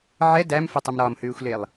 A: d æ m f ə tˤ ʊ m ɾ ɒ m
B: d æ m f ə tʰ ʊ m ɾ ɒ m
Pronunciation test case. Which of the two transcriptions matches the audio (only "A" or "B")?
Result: A